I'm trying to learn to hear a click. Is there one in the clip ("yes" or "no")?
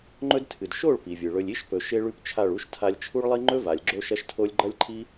yes